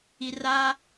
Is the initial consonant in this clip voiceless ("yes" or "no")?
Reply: no